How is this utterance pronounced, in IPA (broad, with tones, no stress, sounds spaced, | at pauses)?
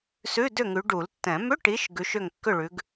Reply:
s ʉ˧˥˧ d ʏ˥˨ ŋ ʉ˨˦ ɖ u˨˩˦ l tː ɛ̃˨˩˦ m ʏ˧˥˧ ʈ i˨˦ ʃ ɡ ʉ˨˦ ʃ ʏ˥˨ ŋ kː ʏ˥˨ ɭ ʉ˨˦ ɡ